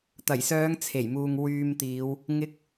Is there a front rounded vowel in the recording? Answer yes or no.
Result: yes